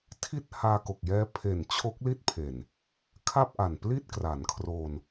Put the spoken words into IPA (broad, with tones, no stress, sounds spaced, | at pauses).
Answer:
tʰ i˥˩ t̚ h aː˧ k o˨˩ k̚ j ɛː˦˥ pʰ e˨˩ n t͡ɕʰ o˦˥ k̚ l i˥˩ t̚ pʰ e˨˩ n | kʰ a˥˩ p̚ ʔ a˨˩ n p l i˥˩ t̚ k r a˩˦ n kʰ r o˧ n